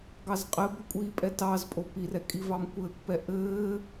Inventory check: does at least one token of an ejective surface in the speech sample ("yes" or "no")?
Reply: yes